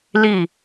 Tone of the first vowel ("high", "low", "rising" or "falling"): falling